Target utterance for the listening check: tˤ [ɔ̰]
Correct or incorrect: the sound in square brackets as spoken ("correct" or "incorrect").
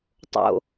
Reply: incorrect